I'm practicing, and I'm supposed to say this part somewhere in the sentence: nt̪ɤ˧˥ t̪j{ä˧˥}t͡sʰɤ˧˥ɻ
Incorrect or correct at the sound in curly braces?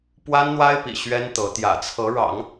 incorrect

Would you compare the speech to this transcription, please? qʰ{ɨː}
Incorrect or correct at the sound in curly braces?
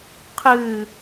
correct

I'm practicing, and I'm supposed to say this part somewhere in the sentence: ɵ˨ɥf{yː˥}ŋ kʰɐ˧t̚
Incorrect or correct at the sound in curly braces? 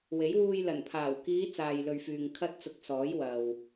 incorrect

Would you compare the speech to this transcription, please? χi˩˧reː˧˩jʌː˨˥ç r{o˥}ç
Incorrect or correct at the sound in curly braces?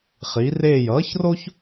correct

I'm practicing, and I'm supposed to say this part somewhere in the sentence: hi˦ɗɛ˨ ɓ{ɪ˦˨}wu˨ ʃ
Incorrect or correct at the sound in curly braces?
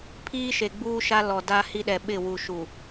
correct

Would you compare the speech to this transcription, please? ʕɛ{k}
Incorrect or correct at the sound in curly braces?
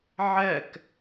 correct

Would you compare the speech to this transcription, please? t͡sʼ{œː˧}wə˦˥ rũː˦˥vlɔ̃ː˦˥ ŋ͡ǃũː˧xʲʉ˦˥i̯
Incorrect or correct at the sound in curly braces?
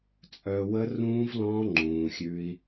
correct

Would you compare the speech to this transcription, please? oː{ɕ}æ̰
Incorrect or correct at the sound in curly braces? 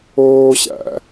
correct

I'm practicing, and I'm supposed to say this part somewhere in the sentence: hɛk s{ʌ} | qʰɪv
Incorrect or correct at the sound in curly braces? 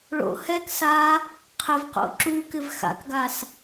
incorrect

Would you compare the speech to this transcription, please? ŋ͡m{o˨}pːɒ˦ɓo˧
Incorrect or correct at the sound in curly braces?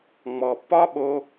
incorrect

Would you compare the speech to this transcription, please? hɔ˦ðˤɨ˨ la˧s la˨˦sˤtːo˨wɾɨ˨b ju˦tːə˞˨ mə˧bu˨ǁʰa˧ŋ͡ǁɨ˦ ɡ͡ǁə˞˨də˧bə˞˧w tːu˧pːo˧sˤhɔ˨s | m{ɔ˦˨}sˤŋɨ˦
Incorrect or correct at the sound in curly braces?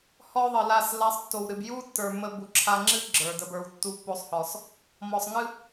incorrect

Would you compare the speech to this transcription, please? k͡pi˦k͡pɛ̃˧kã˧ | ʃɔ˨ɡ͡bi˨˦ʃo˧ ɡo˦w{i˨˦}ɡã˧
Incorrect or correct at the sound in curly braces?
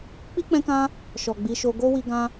incorrect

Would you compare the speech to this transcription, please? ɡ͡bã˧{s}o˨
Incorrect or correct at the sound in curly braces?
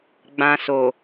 correct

